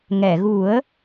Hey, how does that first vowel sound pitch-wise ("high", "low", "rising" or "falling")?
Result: low